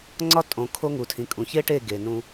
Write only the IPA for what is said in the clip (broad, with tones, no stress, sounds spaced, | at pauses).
ŋ͡ǀ ɒ˦ tʼ õ˨ kʰ o˦ ŋ u˨ tʰ ĩ˨ kʼ ũ˨ ç e˦ ʈ e˦˨ ɡ e˨ n ũ˦